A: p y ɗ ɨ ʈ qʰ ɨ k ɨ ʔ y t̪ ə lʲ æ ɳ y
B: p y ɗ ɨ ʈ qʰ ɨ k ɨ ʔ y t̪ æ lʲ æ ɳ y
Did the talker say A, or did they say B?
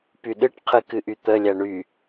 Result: A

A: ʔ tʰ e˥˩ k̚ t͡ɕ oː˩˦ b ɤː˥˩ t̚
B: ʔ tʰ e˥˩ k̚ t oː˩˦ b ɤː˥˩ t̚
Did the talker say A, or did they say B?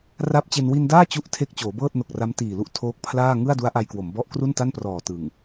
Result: A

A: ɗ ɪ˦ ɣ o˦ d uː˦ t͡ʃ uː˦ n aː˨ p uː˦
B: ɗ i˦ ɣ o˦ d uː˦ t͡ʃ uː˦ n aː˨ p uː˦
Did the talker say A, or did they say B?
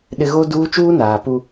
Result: A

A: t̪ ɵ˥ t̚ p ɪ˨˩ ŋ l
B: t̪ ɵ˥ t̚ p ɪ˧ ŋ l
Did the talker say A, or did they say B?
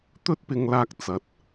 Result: B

